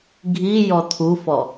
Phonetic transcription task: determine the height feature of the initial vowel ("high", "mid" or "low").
high